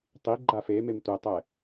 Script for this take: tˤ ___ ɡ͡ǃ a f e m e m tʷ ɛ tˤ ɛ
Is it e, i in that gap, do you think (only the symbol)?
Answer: i